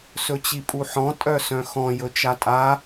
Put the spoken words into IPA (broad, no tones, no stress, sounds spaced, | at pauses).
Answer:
s ɵ t͡ɕ i pʼ u ħ ɔ̃ tʼ œ s œ̃ x ɔ̃ j ɵ t͡ʃ a tʼ a